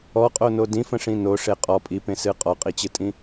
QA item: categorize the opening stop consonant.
ejective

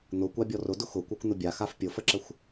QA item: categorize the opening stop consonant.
plain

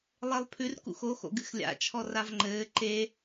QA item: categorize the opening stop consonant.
aspirated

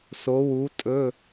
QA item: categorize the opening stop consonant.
ejective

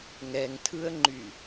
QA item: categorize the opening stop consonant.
aspirated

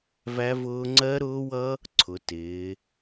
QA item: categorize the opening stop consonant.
click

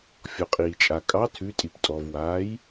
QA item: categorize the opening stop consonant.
ejective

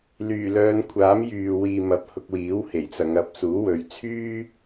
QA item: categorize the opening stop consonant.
aspirated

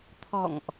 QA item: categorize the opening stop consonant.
aspirated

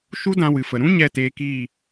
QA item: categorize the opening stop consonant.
plain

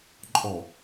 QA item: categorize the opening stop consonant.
click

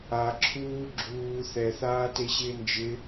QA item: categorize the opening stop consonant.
click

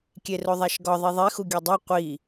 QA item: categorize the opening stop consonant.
plain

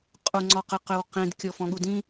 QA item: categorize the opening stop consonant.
ejective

